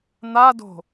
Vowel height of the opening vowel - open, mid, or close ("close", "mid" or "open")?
open